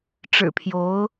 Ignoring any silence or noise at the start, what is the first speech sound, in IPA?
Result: ʈ͡ʂ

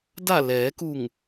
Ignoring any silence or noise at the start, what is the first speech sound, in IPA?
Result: d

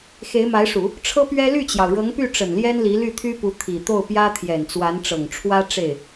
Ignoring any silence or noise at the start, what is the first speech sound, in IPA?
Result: x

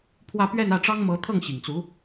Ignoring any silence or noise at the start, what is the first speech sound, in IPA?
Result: pʰ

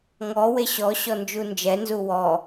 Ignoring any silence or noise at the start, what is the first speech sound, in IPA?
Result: ŋ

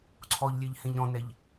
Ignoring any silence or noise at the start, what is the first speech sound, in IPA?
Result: ǀʰ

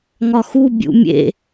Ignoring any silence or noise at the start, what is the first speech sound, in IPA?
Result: ŋ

